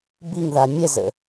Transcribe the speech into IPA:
biŋða mʲɛzə̰

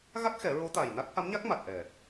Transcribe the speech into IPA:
ɣa˦˥k̚xɛ˨˩˦ ɹo˧˥t̪a˨˩jna˦˥k̚ ha˧˥mɲa˦˥k̚ma˨˩t̚ʔɛ˨˩

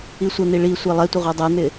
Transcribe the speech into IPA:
isʷən̪i ɭisʷɛ lˠɛtʷə ʁʷɛdˤɛn̪ɪ

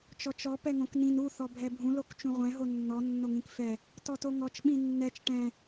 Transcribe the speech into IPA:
t͡ʃɔt͡ʃɔ pɛŋõknĩn u θɔbʱɛbʱũ lokt͡ʃũʁʷɛ̃ ɦonːɔ nːoŋĩkfɛ | tɔtoŋɔt͡ʃ ɓĩnːɛt͡ʃ ʈɛ̃

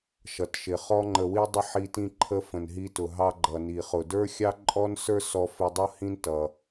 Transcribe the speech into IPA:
ʃʌ˩tʃɪ˩ χɔ˥ŋ͡ǃə˧wi˥ dˤə˥ħi˧ tĩ˧ǃʰə˧ fə̃˩nɦi˧tʊ˩ɦɑ˧ ɡ͡ǃʌ˩ ni˩χʊ˩ də˞˥ xʲɑ˥ǃʼɔ˥n sə˞˥sɔ˧ fɪ˧ dˤʌ˥hĩ˥ntʌ˩

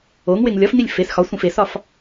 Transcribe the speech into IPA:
oŋweŋ lʲɒfnilʲ fes xɒsʷẽf esɒf

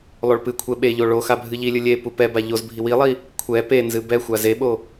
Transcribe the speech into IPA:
lˠoɭpɨkʷʰɛ ɓeʎo ɭoxa bʱɨʎilʲɨ lʲe pupɛba ʎozbʱi wilˠi | kʷʰɛ penzɨ bɛxʷa zeɓo

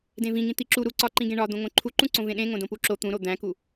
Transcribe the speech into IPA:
dẽvĩŋĩ t̪iǁu ɾu ǀɒǃĩɡẽ ɳɒd̪õ ŋõǃʰuǃũ ǀõvẽɗẽ ŋõdõpuǁo t̪ũɾo d̪æ̃ku

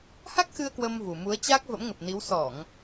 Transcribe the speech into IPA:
ha˦˥k̚xɨ˧ə̯ kwə˧mvu˨˩mu˨˦ə̯ t͡ɕa˦˥k̚ və̰˧˥mŋə˨˩p̚ni˨˦w sɔ˧˩˨ŋ

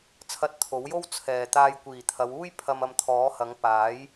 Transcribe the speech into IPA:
t͡sʰɐ˧t̚t̪ʰo˨˥wjo˥w t͡sʰɛː˨t̪aː˧j kʷiː˨˩t̪ʰɐ˨˧wuː˥j pʰɐ˧mɐ˧mt̪ʰɔː˨˥hɐ˨˥ŋ paː˨˥j

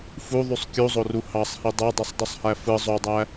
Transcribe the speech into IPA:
fuðˤysˤ kʲuzˤoru hɑsˤhi dˤudˤisˤdˤusˤhæ fɯ zˤodˤæ

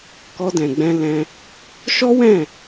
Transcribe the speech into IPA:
kɔ˧dɛ̃˨ ɡ͡bɛ̃˧lɛ̃˧ | ʃɔ˦wɛ̃˦˨

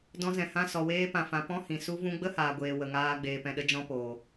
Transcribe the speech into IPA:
dɔ̃˧zɛ̃˨hã˧ sɔ˨weː˧pã˨fã˨ pɔ̃˦hĩ˨ su˦vũ˦ ɡ͡bə˦haː˨ɡʷeː˨ wə˨ŋaː˧ ɡ͡beː˨pɛ̃˨ɗə˧ d͡ʒɔ̃˦poː˨

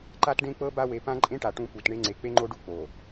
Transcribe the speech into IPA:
ǃa˦tɖẽ˦k͡pɤ˦ba˦ we˨pã˦ ǃʼẽ˦ʈa˨ ʈũ˦pu˨t ɳe˦ŋ͡ǀe˨˦ k͡pe˦ŋ͡ǃo˦ɖu˦ k͡po˨

